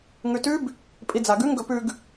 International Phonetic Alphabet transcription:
ŋʉtʉb | pʼid͡zaɡʉŋ ɡɵpʉɡ

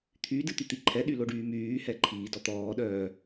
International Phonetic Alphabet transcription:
t̪ʰydɨt̪yt̪i ǃʰɛɗyloɖyː myːhɛ ǃʰiːdɔ t̪ɔːɗœː

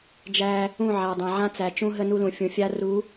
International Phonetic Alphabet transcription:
d͡ʒæ˦ | ũ˦˨ʕa˨dˤã˨ʕã˦ t͡sæ˨t͡ʃũ˦ɦə˦ nu˦lũ˨fʲũ˨ fʲa˦ru˨˦

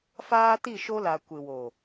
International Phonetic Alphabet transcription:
faː˦ti˦˨ʃo˦la˨ kʷɪ˨wo˨

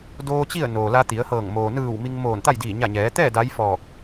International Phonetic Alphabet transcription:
doː˧ t͡ɕi˥˨ə̯ noː˩ la˧t̪i˩˧ə̯hɤː˧˩ŋ moː˩nɯː˧˩w mi˧ŋmoː˧˩nt̪a˥˨j diː˧˩ɲa˧˩ɲɛː˩˧t̪ɛː˥˨ daː˧˥jfɔː˧˩k̚

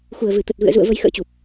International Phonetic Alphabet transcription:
xu˧˩ə̯vɨ˧˩ t̪ə˨˩t̚vɨ̰˧˨ə̯zṵ˧˨ə̯ və˧jxə̰ː˧˥t͡ɕu˨˩p̚

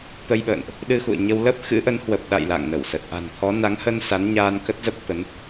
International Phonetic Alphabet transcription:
t̪ə˧jɓə̰ː˧˨nʔ | ɗɨ˧xṵ˧˨ə̯ɲə˧w lə˦˥p̚xɨ̰˧˥ʔə˨˦n hwə˨˩p̚ɗa̰˧˨j la̰˧˨ŋnə˧˩wsə˨˩t̚ ʔa̤˨˩nt̪ʰɔ˨˦ na˨˦ŋhə˧n sa˨˦nɲaː˧n kə˦˥t̚zə˦˥p̚ t̪ə˨˦n

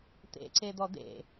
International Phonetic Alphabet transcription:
t̪ḛǀed̪ɔ d̪ḛ

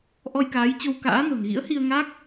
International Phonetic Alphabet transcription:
ʔɔ˧jkaː˨˦jt͡ɕo˧w ka̰ː˧˥no̤˨˩n ɣḭ˧˥ə̯hi˧ə̯ŋa˦˥k̚

